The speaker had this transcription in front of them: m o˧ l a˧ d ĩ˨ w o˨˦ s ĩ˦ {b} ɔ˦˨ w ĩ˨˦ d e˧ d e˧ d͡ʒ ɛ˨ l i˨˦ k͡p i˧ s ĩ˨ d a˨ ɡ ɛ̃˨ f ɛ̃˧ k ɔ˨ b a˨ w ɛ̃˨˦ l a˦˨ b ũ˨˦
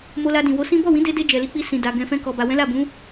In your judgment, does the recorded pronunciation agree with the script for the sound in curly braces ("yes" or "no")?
yes